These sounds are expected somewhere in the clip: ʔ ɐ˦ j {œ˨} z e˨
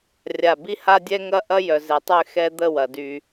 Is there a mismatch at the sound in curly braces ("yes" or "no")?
no